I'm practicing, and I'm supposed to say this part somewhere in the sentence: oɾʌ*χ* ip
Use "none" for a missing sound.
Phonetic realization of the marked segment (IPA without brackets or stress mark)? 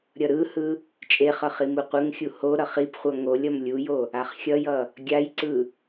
χ